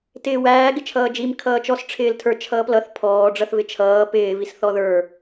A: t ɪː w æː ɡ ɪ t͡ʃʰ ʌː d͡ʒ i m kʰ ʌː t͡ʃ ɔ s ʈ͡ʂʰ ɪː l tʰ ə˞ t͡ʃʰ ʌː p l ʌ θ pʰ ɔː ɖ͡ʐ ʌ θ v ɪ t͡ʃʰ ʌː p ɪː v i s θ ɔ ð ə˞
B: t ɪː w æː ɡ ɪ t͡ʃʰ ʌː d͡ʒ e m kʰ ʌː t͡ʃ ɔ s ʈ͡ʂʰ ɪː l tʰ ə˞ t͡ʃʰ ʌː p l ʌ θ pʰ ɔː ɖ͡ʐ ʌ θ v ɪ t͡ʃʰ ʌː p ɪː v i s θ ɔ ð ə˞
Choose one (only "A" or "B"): A